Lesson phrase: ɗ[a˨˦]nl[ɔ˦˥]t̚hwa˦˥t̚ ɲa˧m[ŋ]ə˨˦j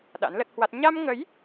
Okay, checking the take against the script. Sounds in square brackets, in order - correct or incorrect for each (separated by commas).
incorrect, incorrect, correct